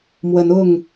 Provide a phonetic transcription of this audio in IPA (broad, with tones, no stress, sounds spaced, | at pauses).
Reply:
m w ə˨˦ n ʊ˥˨ ŋ